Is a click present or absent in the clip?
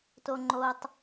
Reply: present